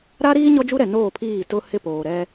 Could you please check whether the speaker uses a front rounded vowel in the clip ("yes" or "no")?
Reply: no